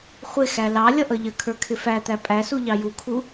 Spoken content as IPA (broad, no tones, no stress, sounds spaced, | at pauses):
χʷ ɪ x æ l ɑ lʲ ʌ ʔ ʌ ʎ ə kʰ ə˞ kʰ ɪ f æ t̪ æ pʼ æ s u ʎ ɑ j u kʰ u